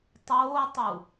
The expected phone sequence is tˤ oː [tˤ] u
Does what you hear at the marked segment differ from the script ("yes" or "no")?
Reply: no